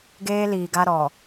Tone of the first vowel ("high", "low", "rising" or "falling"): high